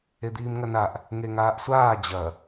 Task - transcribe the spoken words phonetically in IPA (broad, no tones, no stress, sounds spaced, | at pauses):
e d̪ iː m ŋ ɐ n a ʔ | ŋ e ŋ aː ʔ sʷ aː d͡ʑ ɐ